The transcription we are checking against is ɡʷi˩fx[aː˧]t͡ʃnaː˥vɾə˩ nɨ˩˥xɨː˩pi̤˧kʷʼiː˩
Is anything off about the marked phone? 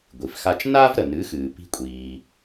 yes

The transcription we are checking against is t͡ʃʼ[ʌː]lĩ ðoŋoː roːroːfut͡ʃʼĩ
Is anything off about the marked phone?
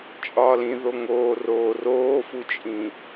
yes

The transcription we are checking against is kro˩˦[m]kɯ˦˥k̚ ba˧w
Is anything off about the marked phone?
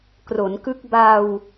yes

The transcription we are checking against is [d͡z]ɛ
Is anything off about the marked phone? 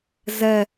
yes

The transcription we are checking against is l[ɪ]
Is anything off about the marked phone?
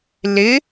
no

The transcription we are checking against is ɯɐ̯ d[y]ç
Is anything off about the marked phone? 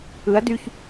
no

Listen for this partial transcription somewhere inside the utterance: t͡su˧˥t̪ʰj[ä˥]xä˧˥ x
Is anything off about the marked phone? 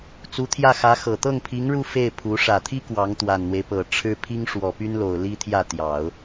yes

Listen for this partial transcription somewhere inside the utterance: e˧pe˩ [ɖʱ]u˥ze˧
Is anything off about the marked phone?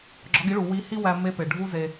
no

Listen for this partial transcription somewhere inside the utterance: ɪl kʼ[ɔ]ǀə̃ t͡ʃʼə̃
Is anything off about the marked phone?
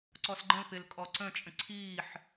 no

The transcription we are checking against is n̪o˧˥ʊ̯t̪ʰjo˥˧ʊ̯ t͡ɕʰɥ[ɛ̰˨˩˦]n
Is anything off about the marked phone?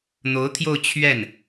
yes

